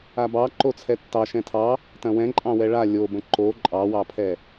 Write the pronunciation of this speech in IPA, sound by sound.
abɑ ǃot͡sʰɛtːɑ ʃɛ̃tʰɑ | tɐ̃wɛ̃ǃʼɑ̃wɛ ɭa lʲobə̃ ǃo ǃʼɑwɑpʰɛ

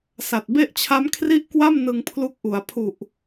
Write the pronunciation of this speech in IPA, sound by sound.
sa˨˩t̚be˥˩ʔt͡ɕʰa˦˥m kʰri˥˩ʔkwa˥˩m nɯ˧ŋpʰlu˦˥k̚ʔu˩˦a̯ pʰu˨˩ʔ

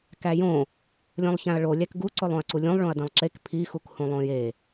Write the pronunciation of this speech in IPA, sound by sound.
kæjõ | lʲõlˠçæ̃ɐ̯ɭo lʲækɡu ǀolˠõɐ̯ǀulʲũlˠ ɭõɐ̯dẽlˠǁek pʰi xukhũlˠõje

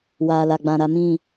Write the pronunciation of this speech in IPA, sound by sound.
waː˨la˨ɡ͡bã˨ ɾa˨mĩ˦˨

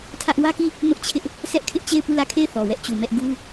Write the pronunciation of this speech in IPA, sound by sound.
tʰä˦ʔ wä˦ki˦˨ | mʊ˦ʔt͡ɕʰɪ˦ʔ | sɛ˦ʔkʰɪ˦ʔt͡ɕe˦˨ɪ̯ pu˦˨lä˦˨kʰe˦˨ɪ̯ θɔ˨wɛ˦ʔt͡ɕu˨mɛ˦ʔ ɡu˦

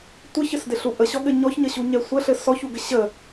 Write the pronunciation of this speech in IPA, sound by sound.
tʷəçɘsdɪɬu ʔəɕɔɠɘ ɲɔçɲəɕuɲɛ sʷɘɬɘ sɔçuɡɘ ɕə

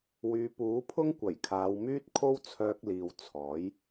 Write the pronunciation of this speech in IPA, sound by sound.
wyː˨˧puː˨˥pʰʊ˥ŋ kʷɐ˨˩jkʰaː˨˧w myː˥t̚kʰo˥wt͡sʰœː˧k̚liː˨w t͡sʰɔː˨˥j

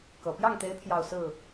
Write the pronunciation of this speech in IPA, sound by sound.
kɤ˨˩ pjɑ˥˩ŋt̪e˧˥ɪ̯ pʰjɑ˥˧ʊ̯sɹ̩˥˩

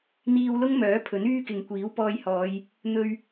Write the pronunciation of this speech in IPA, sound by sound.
n̪iː˧wlʊ˥ŋmœː˨˥ pʰɵ˨˥nyː˥kɪ˨ŋ kʷiː˨˥wpɔː˧jhɔː˨˧j | n̪ɵ˧ɥ

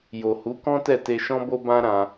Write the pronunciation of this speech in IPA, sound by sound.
jo˨hu˨˦kɔ̃˦ tɛ˦˨te˧ʃɔ̃˦ bo˦bã˦ ɾã˧

